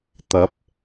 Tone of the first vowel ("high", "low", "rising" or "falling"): rising